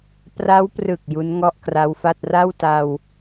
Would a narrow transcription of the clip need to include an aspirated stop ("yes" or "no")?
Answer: no